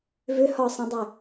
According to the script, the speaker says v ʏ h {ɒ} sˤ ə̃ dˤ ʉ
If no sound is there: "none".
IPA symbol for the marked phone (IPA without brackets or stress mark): ɒ